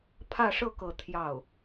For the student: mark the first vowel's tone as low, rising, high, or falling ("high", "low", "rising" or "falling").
falling